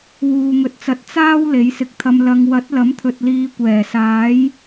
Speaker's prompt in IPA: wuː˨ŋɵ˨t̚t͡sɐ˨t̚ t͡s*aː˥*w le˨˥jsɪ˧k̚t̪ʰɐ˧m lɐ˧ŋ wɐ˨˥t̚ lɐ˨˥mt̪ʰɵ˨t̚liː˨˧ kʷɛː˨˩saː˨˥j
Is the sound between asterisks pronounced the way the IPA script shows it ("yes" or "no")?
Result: yes